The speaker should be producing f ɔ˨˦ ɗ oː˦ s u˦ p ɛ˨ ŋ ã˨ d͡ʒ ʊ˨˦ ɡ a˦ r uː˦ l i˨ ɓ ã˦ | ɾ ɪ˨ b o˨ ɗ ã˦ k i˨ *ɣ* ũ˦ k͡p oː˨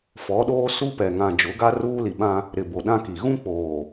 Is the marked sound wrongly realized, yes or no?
no